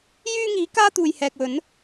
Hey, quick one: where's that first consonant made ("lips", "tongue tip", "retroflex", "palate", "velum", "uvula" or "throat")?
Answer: palate